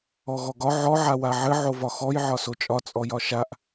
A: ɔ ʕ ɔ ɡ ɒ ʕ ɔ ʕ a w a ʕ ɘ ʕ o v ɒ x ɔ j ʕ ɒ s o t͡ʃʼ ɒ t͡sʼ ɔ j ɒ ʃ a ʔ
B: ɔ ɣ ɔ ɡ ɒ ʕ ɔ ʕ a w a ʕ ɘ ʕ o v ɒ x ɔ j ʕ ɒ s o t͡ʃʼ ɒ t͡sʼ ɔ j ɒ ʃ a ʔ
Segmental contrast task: B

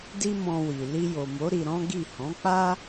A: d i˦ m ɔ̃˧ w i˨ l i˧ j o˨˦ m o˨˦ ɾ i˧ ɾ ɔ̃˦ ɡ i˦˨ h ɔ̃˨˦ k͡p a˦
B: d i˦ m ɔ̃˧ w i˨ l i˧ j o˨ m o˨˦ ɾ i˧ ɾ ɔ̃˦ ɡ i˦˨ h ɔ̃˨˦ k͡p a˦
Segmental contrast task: B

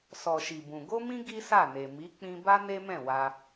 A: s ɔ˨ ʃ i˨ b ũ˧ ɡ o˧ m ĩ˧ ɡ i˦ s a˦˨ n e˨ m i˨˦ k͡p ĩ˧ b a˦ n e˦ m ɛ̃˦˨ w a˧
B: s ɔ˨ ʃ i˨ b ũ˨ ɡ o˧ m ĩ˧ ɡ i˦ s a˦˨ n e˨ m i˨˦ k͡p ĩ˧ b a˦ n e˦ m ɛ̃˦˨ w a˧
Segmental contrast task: B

